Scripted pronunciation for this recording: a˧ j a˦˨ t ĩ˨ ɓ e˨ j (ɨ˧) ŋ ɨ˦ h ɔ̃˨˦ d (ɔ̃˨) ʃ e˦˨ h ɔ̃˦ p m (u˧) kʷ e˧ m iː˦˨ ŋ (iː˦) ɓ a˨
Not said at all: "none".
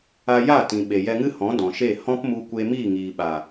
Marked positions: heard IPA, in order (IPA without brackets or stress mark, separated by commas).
ɛ˧, ɔ̃˨, u˧, iː˨